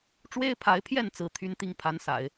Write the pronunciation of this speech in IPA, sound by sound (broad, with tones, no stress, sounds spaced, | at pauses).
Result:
ʈ͡ʂ w e˥ ɪ̯ pʰ a˧˥ ɪ̯ pʰ j ɛ˥˩ n t͡s ɹ̩˧˥ t̪ʰ y˥ n t̪ i˥˩ ŋ pʰ a˧˥ n s a̰˨˩˦ ɪ̯